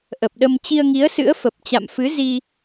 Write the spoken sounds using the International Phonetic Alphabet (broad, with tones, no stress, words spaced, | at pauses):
ʔə˨˩p̚ɗə˧m t͡ɕi˧ə̯ŋi˨˦ə̯sɨ̰˧˥ə̯ fə˨˩p̚t͡ɕa̰˧˨mfɨ˨˦zi˧